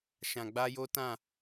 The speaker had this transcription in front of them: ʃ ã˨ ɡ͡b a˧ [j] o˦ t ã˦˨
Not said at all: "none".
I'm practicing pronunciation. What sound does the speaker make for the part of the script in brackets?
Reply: j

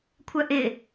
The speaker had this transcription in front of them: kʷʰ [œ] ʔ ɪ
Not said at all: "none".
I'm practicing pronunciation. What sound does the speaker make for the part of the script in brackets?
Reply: œ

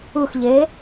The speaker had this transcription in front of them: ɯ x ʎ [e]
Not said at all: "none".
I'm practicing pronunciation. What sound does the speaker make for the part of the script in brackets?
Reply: e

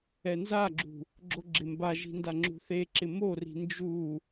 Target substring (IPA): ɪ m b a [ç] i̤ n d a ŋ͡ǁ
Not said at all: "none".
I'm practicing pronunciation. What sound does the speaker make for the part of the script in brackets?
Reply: ʒ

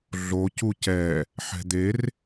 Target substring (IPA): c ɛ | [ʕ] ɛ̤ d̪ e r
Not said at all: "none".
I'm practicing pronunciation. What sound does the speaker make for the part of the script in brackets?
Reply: ħ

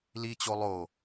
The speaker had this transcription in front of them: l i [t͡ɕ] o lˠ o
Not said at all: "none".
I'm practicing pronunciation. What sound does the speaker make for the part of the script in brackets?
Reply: t͡ɕ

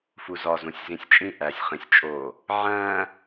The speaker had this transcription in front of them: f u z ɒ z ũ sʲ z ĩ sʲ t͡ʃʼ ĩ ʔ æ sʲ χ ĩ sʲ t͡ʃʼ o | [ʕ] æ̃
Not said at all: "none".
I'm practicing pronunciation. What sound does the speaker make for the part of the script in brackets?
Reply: ʕ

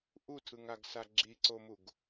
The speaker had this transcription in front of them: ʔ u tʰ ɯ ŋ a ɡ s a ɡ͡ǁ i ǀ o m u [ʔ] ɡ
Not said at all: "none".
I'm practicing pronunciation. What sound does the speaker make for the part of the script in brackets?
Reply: none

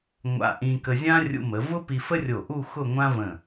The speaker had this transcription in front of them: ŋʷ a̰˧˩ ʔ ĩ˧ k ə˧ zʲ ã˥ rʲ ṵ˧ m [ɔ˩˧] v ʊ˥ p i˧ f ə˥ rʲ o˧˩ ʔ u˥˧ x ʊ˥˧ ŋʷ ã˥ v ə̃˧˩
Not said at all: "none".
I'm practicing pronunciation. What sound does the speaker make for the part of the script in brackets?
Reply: ə˩˧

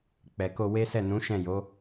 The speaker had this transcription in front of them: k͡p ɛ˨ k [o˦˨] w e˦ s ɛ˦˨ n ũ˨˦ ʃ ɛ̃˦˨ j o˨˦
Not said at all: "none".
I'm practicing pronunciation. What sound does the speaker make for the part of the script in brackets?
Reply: o˧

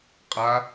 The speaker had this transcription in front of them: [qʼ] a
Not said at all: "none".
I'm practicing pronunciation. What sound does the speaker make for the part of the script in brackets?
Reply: qʼ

